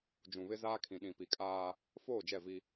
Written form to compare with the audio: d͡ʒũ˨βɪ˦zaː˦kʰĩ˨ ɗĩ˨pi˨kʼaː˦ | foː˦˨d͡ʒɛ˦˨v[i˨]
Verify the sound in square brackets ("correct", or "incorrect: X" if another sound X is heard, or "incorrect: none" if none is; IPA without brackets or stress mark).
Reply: incorrect: i˦